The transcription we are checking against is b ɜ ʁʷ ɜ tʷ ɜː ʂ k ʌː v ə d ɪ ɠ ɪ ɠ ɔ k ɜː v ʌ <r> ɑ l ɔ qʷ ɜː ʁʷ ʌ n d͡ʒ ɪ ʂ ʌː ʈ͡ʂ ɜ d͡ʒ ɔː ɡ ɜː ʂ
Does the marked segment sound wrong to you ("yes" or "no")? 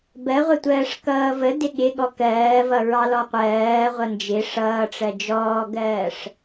yes